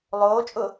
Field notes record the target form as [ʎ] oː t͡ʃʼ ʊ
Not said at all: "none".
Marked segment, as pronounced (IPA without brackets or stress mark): lˠ